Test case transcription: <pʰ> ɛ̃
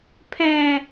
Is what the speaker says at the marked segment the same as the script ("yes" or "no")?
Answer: yes